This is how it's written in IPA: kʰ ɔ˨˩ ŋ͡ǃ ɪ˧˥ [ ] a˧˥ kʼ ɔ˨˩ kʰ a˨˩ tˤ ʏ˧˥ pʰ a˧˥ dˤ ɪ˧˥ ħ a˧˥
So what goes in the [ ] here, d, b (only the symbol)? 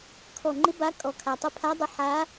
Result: b